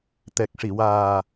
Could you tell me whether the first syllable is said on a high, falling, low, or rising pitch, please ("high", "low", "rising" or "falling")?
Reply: low